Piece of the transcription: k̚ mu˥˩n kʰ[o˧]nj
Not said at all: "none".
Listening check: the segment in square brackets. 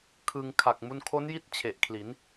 o˦˥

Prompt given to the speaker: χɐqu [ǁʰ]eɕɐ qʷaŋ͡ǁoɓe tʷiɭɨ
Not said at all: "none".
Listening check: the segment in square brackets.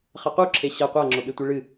ǁʰ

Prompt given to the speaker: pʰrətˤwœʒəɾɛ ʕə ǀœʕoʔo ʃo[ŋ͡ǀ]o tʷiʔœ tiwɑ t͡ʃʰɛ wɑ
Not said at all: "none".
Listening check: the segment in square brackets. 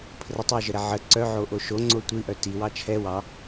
ŋ͡ǀ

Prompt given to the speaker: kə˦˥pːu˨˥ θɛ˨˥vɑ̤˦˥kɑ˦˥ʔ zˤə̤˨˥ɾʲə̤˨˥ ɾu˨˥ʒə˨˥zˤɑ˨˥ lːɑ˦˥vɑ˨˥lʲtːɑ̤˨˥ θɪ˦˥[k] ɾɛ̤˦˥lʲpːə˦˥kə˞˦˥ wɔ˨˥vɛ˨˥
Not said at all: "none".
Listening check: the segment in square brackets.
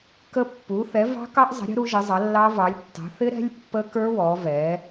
none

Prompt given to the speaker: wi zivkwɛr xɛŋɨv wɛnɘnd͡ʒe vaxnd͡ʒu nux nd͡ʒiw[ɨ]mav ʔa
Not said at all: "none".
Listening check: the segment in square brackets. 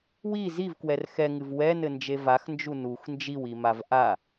i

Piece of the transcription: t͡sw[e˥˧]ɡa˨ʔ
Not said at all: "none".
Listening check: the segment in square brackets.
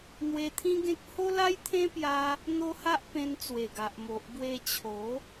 e˨˩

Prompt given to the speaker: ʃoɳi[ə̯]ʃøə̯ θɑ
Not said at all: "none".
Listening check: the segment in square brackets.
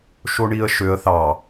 ə̯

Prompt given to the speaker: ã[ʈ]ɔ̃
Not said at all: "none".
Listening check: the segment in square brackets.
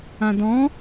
d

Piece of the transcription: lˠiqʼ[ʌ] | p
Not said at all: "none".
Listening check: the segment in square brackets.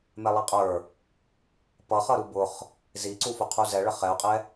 ə˞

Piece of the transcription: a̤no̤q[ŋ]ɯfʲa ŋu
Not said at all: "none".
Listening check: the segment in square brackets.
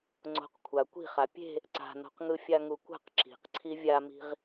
ŋ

